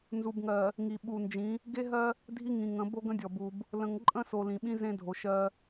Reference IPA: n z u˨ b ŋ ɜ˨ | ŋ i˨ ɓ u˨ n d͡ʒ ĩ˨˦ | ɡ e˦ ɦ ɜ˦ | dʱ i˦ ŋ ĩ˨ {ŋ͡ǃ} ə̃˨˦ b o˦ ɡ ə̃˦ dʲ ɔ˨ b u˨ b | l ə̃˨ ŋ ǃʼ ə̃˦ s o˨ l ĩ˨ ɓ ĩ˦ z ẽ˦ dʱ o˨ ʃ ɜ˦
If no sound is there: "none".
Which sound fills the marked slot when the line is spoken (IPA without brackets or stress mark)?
ŋ